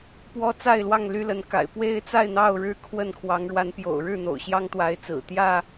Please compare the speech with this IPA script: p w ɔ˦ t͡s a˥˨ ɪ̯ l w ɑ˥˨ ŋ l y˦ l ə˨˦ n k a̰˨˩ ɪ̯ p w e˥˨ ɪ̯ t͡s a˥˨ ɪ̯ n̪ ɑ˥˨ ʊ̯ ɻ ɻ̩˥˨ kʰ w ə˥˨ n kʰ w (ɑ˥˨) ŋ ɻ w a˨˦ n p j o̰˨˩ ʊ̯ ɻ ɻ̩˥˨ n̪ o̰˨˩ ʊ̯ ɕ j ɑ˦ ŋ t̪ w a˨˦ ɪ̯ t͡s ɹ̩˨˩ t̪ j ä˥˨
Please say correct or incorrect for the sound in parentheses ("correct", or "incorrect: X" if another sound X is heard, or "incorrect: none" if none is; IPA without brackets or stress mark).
incorrect: ɑ˨˦